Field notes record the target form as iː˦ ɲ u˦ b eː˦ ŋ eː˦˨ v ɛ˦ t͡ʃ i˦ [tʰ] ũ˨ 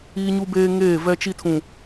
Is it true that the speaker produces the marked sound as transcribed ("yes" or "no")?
yes